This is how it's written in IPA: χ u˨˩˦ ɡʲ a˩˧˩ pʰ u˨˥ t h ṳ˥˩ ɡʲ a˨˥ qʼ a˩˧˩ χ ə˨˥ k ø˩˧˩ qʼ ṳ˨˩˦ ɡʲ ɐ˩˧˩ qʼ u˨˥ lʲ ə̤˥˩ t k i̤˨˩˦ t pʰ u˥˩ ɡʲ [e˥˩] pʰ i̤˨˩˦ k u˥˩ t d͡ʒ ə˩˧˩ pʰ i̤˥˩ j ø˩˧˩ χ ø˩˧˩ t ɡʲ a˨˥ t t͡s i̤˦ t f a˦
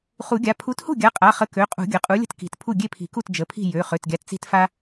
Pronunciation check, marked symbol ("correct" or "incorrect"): correct